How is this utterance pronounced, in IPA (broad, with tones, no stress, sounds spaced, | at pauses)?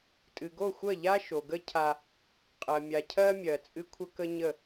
tʼ ɨ˨ ɡ o˦˨ xʷ ɜ˦˨ ʎ a˦ ʃ o˨ ɡ ə˦ cʰ a˦ | qʼ ɜ˨ mʲ a˨ cʰ ɜ˦ mʲ ɜ˨ t͡sʼ ɨ˦ kʷʰ ə˦ k ə˦ ɲ ə˦˨